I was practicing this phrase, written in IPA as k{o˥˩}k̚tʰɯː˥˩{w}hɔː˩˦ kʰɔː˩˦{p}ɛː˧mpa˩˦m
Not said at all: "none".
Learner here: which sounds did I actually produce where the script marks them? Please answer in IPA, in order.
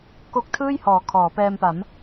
o˦˥, j, p

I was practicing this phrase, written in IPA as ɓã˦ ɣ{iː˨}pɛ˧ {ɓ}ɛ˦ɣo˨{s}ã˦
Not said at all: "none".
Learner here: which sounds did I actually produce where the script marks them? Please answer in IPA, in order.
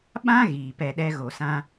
iː˨, ɗ, s

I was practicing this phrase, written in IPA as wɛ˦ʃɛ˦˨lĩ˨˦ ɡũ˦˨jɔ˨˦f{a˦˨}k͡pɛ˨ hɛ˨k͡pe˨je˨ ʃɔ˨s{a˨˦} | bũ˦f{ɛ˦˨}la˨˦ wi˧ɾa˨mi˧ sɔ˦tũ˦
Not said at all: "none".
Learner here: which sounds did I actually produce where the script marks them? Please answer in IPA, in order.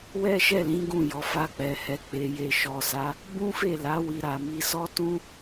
a˦˨, a˨˦, e˦˨

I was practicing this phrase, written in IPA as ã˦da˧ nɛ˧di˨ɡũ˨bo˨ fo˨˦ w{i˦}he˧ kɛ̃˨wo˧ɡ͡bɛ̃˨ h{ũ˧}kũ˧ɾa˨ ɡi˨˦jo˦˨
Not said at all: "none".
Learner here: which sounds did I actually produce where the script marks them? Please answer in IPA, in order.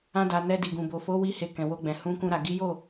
i˦, ũ˧

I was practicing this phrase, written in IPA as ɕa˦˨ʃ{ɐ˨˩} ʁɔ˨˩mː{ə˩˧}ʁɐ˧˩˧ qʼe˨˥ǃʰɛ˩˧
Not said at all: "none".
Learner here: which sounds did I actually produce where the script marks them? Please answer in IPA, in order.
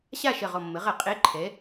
ɐ˨˩, ə˩˧

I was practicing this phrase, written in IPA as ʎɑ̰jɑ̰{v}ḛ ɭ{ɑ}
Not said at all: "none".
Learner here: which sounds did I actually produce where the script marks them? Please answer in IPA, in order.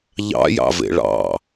v, ɑ̰

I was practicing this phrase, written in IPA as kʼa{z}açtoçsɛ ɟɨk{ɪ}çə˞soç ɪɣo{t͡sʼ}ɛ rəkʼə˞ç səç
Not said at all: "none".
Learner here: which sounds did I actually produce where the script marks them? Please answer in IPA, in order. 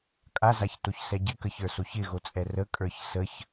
z, ə, t͡sʼ

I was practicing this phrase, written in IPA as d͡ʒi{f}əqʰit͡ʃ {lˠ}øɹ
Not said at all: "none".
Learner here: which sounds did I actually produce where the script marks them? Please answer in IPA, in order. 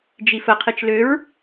f, l

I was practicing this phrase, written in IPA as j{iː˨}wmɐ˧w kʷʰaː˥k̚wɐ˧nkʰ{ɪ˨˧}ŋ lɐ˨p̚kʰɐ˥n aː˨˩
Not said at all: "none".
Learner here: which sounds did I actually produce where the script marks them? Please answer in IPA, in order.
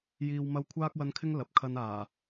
iː˨, ɪ˥

